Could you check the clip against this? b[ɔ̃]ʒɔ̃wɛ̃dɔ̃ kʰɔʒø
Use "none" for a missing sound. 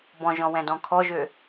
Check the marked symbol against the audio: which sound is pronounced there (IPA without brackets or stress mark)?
ɔ̃